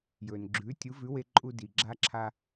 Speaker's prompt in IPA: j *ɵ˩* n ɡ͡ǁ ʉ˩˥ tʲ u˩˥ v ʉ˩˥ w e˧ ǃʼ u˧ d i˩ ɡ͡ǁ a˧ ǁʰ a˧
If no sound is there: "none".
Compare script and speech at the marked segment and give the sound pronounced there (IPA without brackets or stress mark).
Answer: ɵ˩